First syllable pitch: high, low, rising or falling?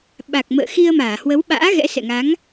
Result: low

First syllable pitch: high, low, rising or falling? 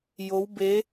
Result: rising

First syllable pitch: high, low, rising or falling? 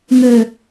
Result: low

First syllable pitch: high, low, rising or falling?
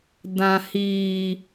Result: low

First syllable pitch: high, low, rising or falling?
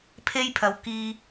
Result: high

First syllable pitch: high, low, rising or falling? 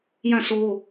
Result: falling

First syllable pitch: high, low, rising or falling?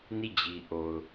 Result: falling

